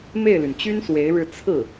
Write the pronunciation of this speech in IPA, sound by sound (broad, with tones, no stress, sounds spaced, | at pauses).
m e˥˩ ɪ̯ l y˩ n t͡ɕ y˥ n s w e˧˥ ɪ̯ ɻ ɻ̩˥˧ t͡sʰ ɹ̩˥˩